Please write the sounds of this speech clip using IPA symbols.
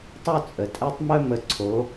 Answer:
tˤ u˥ t͡sʼ ə˨˩ tʼ ɛ˥ tˤ m œ˥ m ə˨˦ ǀʰ o˨˦

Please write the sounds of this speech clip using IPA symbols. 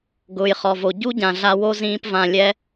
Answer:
ɡ ʊː˨ j χ ɔ˨ v o˨ ɟ u˦ ɟ ã˨ ɮ a˧ w o˦ z ĩː˧ p v ã˧ lʲ ɛ˦

